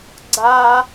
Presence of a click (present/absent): present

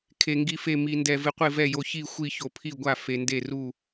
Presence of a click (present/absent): absent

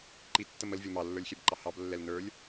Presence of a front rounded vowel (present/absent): absent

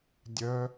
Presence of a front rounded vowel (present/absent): present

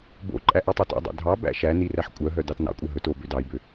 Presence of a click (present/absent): present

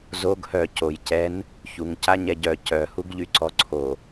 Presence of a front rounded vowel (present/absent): present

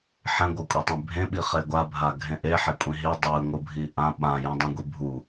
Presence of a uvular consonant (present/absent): present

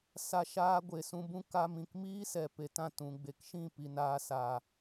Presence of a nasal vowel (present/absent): present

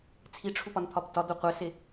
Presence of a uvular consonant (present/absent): present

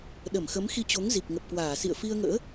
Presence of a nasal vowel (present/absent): absent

